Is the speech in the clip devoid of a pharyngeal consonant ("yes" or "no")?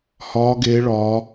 yes